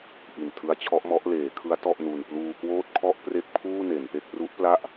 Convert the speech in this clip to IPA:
ʔi˨˩ntʰɯ˦˥a̯t͡ɕʰɔ˦˥ʔmɔ˦˥ʔ leː˩˦kʰɯ˦˥a̯ tɔ˥˩ʔnu˧n pluː˧kwoː˥˩t̚kʰɔ˥˩ʔ pre˥˩k̚pʰuː˥˩ ne˩˦npe˥˩k̚ ru˦˥ʔpla˥˩ʔ

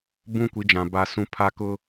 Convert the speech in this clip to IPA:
bũ˦kʷi˨˦d͡ʒã˨ ba˦sũ˦ pʰa˦kʊ˦

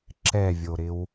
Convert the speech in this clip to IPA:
ǁɛvʲoɾɪw

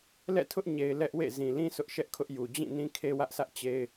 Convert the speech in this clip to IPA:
lɛ̰˦˨tʰʊ˦ʔ ɲe˨ɪ̯ lɛ˦ʔwḛ˦˨ zĩ˨lĩ˦ sʊ˦ʔʃɛ˦ʔkʰʊ˦ʔju˨ d͡ʑĩ˦˨ nĩ˦kʰe˦wä˦ʔsʰä˦ʔ t͡ɕe˦ɪ̯

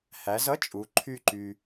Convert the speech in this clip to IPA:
hæ˩˧zʌ˥t͡ʃʼu˩˧ ǃʰy˥˧ǃy˧

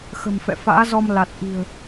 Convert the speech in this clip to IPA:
xə̤˨˩mfɛ̰˧˨ fa̰ː˧˥zɔ˧m la˨˩t̚ʔi̤˨˩ə̯

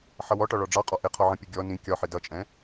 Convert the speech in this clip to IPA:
ħʌwɔʈɒ ɭɔɖ͡ʐɑqʼɒ ʔɪ qʰɔʕə̃pʲu ɡʲɔ nĩ kʲɒħɪ dʌt͡ʃʼɛ̃

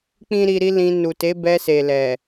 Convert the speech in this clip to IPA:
k͡pĩ˦ɾi˧ɾi˦lĩ˧ nu˨te˨˦bɛ˧ se˨lɛ˨

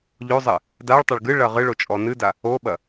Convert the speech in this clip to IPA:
ʎozˤɘ | daɭtˤɐɭ ɡɨ ɭɐʁɨɭo t͡ʃʼɔnɨda | oɓɐ

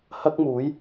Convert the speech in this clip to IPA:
hɐ˥k̚muː˨˥j

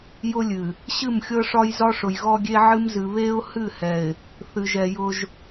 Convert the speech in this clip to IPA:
jʊ˦lʲɨ˨ | ɕɨ˦˨mxʲɤ˦ʂɒ˦j zɒ˦ʂʊ˨jɣɔ˦ɡʲe˦ ʕɨ˦mzɨ˨ βe˦ʊ̯ hɨ˦˨hɛ˨ɪ̯ | θɨ˨ʒɛ˨ jʊ˦ʒ

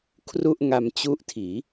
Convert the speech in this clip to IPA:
kʰru˥˩ʔŋa˧mt͡ɕu˦˥ʔ tʰiː˩˦

